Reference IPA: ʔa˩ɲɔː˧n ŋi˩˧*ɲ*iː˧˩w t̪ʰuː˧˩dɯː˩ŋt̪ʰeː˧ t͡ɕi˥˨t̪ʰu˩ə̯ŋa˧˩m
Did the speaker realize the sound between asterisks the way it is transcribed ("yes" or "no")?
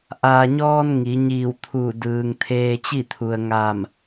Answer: yes